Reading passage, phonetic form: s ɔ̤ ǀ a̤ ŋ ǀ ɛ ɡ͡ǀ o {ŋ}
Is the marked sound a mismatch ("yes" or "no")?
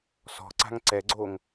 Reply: no